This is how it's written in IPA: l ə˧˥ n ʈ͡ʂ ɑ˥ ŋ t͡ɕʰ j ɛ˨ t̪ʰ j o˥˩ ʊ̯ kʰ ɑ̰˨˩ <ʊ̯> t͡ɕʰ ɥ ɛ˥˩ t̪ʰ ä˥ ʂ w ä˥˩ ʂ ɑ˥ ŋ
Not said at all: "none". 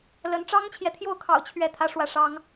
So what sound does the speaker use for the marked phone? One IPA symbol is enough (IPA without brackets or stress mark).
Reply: ʊ̯